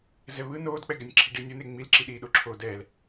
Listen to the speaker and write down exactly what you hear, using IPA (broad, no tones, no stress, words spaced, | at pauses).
zɛβɯ noːdk͡pɛɡɛnʲ ǁʰiɖiːnʲone ŋ͡milǁi ɗiːɗoǁʰoːdɛːl